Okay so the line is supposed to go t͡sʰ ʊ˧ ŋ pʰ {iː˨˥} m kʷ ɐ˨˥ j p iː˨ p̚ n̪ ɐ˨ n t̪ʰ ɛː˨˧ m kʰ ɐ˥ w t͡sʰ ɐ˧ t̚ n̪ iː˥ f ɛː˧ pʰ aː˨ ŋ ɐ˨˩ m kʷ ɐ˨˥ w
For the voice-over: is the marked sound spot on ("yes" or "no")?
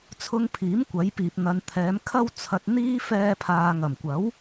yes